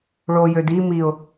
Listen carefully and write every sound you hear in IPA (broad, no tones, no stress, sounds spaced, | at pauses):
ɭ o j ø d i m i ʊ̯